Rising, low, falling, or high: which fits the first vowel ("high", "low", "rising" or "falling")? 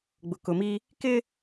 low